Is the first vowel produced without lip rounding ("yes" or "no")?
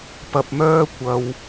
yes